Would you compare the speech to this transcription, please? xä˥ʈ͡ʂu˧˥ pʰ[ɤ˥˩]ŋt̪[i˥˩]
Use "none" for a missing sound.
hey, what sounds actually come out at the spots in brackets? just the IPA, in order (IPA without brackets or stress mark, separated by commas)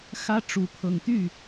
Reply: ɤ˨˩, y˥˩